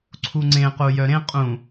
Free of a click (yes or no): no